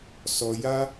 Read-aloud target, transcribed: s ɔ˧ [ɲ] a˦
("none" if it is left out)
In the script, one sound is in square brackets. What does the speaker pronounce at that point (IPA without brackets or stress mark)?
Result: j